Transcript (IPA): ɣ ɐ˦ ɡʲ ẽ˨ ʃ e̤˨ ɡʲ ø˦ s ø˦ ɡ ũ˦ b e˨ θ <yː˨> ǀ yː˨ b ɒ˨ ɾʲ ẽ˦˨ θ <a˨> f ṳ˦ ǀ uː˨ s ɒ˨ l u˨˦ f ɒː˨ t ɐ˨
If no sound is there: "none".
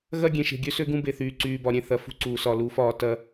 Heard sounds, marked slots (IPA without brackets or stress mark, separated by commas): yː˨, ɐ˨